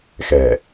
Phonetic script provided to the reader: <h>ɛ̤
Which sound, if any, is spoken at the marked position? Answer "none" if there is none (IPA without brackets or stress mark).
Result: x